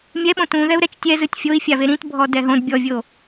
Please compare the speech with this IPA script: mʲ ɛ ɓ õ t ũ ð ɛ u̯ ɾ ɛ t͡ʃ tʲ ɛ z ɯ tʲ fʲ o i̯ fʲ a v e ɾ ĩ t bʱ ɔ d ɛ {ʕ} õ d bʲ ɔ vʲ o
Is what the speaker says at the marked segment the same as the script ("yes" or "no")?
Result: no